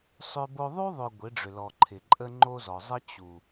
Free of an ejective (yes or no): no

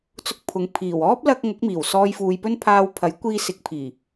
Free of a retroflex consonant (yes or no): yes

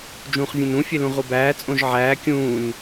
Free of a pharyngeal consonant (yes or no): no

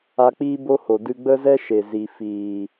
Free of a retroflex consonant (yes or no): yes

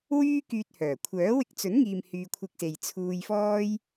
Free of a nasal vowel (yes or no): yes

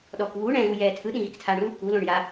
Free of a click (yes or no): yes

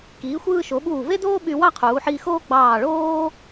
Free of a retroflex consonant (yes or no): no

